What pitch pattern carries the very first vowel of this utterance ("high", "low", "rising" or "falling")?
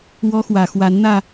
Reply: high